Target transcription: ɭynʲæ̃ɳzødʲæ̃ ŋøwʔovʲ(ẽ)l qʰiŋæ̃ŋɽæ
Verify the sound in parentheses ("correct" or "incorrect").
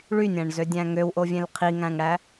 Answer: correct